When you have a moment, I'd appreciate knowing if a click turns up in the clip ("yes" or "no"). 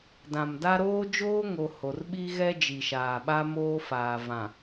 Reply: no